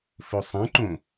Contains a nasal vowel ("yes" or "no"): yes